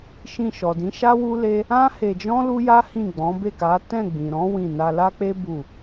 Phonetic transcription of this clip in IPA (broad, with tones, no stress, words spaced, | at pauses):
ʃĩ˧ʃɔ˨dĩ˨˦ ʃa˦wu˦le˦ | ã˦ he˧d͡ʒɔ̃˦ lu˦ja˦ hĩ˦˨ɡ͡bɔ̃˨˦ be˦˨ka˨˦ tɛ̃˦˨ɡ͡bĩ˨ ɾɔ̃˨˦ wĩ˦˨ na˧la˦k͡pe˦ bu˦˨